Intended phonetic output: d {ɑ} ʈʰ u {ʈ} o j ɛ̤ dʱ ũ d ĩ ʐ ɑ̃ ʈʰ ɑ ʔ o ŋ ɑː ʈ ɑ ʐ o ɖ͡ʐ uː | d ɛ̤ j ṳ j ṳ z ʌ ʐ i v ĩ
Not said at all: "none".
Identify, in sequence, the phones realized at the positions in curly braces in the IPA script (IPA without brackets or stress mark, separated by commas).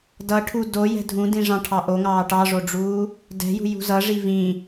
ʌ, d